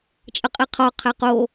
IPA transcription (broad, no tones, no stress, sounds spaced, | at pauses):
t͡ʃʼ ə qʼ i qʰ ɔ qʰ ɛ q o